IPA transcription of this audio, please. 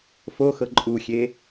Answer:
f o x ɤ ǃʼ u xʲ e

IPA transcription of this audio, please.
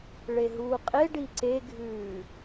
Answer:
ɭ e ɦ uː qʼ e ɖ i ǀ e ɡʱ ʉː

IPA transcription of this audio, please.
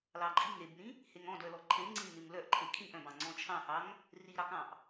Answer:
l ɑ ǃʼ i ŋ ɾ e b n ĩ | h e ŋ ɔ̃ d œ l ɔ ǃʰ ẽ ŋ͡ǀ ĩ n ʉ ŋ l œ ʔ ǃʰ e kʰ ĩ ʔ œ̃ b ɑ̃ ŋ͡ǀ ɔ̃ t͡ʃʰ ɑ̃ h ɑ ŋ | r i ɾ ɑ k ɑ̃ ʔ

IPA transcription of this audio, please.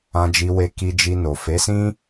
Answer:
ã˧ d͡ʒ i˧ w e˧ k i˧ d͡ʒ i˧ n o˨ f e˨˦ s ĩ˦

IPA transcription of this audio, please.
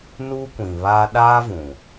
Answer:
n uː˦ kʷ ĩ˨ β aː˦ ɗ a˦ v ũ˨

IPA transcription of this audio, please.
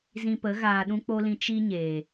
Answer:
z ĩ˧ p ə˨˦ ɣ aː˧ ɗ ũ˦ k͡p o˦ l ĩ˧ t͡ʃ i˦ ɲ eː˨

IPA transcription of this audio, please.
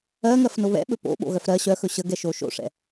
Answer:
ɜ ŋ ɜ f n o β ɛ̰ ɓ ɵ p o̰ ɓ o̰ ɣ œ f ɾ ɜ ɕ œ x ɵ ɕ ə ɡ ɛ ʃ o ʃ o̰ ʂ ɛ̰

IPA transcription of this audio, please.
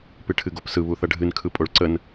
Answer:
p ɨ ʈʰ ɨ ɡ o p s ɯ β u θ ʌ ɖʱ ɨ n kʰ ɯ pʼ o ɭ ǀ ə n

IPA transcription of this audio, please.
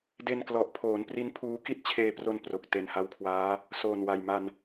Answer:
d e˧ n k l ɔ˨˩ ʔ pʰ oː˩˦ n p r i˦˥ n pʰ uː˦˥ k i˥˩ t̚ t͡ɕʰ eː˧ p r o˧ n p r o˨˩ k̚ t e˨˩ n h a˧ w kʰ w aː˦˥ | s oː˨˩ n w a˨˩ j m a˧ n

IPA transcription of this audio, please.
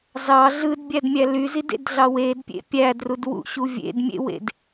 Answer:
z ɑ ɮ ɯ d bʲ æ d mʲ æ l y z i d ḛ d ɮ ɑ w e d pʲ ḛ pʲ æ d r u d w ṵ ɕ u vʲ ḛ d mʲ ḛ w ḛ d

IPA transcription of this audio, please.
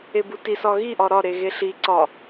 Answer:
e b u t i s ɒ ɣ i ʔ ɒ ɾ ɒ ɾ e ɣ e ɬ i ǀ ɒ

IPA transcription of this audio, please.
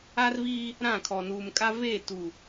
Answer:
a˦ r v iː˦ | ɾ ã˦˨ kʰ ɔ˨ n uː˨ m kʼ a˦ v e˦˨ t u˨

